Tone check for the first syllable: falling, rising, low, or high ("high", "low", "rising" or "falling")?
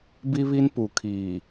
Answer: high